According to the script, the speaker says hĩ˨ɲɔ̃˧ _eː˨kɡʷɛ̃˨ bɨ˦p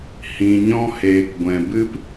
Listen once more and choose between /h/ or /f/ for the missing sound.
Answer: h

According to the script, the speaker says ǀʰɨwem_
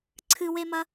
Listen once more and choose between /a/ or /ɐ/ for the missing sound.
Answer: ɐ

